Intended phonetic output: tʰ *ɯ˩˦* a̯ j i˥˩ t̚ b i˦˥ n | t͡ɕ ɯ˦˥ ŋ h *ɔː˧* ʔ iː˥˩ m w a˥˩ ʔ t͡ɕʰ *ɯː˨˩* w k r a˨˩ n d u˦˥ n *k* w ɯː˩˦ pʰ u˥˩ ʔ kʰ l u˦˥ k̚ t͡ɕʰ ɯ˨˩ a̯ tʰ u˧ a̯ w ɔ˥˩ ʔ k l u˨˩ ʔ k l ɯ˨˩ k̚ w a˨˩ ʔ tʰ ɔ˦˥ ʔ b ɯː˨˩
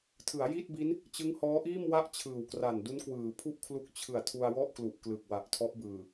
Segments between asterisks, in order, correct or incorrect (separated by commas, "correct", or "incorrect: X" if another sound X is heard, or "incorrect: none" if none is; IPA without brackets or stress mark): correct, incorrect: ɔː˦˥, correct, correct